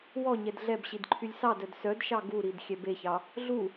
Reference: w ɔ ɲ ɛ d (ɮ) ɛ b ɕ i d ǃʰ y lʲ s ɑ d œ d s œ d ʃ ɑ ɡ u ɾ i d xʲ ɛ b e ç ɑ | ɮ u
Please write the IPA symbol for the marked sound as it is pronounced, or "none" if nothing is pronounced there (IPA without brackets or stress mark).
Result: ɮ